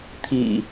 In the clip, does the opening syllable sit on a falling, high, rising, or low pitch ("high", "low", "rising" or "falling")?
low